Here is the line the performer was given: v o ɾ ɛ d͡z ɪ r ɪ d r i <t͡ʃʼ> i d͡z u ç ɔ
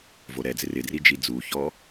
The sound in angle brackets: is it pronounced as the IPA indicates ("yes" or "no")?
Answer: no